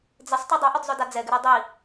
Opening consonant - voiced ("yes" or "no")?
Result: yes